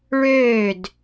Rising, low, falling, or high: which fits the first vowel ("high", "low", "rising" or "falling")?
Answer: falling